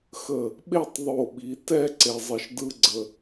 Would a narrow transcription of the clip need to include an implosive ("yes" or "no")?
yes